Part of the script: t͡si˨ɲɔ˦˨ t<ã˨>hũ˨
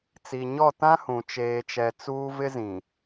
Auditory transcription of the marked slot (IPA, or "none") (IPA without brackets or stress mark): ã˦